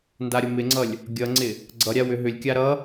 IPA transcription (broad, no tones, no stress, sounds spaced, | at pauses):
n d a ɾʲ ʌ m ɪ ŋ͡ǀ ʌ lʲ | ɡʲ ʌ ŋ͡ǀ ɪ | ɡ͡ǀ ʌ ɾʲ a w ʏ ɦ ʏ lʲ kʲ a ɾ ʌ